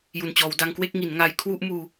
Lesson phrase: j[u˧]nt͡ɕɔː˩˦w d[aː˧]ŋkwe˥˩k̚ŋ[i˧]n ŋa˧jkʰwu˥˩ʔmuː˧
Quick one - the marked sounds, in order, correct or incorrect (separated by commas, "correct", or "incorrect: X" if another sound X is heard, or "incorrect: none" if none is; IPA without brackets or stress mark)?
incorrect: u˨˩, incorrect: a˧, incorrect: i˩˦